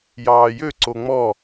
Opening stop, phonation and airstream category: click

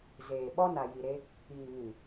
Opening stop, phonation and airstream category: implosive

